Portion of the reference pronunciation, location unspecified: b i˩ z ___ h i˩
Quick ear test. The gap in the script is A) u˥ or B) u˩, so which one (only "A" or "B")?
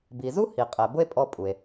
A